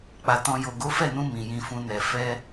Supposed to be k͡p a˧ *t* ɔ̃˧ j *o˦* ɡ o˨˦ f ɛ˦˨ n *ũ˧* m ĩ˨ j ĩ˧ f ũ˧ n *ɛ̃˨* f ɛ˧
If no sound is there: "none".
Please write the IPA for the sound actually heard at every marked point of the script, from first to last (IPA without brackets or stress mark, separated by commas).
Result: t, o˨, ũ˧, ɛ˨